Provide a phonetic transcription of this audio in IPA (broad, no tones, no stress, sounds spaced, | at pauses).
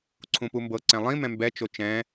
ǀʰ ũ p u m b ɤ ǀ ɛ̃ lˠ ĩ m ɛ̃ m b ɛ t͡ʃ o t͡ʃ ɛ̃